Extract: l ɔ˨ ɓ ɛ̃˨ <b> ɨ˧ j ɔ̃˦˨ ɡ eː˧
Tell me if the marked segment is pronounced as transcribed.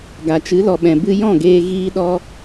yes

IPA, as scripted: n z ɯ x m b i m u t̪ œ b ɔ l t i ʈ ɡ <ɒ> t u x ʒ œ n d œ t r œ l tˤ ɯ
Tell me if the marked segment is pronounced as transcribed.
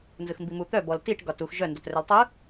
yes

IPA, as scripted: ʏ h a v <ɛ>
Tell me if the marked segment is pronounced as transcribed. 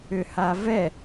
yes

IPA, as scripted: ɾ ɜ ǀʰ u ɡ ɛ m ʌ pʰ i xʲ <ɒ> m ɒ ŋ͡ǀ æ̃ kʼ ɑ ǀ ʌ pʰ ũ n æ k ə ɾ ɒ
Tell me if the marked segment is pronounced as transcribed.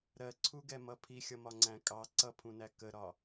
no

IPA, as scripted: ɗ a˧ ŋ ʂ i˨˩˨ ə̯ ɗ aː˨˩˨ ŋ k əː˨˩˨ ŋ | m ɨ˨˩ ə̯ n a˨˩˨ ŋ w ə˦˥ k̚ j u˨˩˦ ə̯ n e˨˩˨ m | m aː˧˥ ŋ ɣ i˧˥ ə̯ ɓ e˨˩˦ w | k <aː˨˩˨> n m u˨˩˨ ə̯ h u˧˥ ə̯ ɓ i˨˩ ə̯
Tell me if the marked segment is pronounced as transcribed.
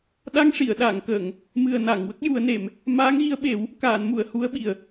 yes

